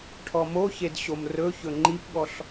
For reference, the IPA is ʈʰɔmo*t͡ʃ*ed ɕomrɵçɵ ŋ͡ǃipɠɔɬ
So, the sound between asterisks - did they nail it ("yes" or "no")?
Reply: no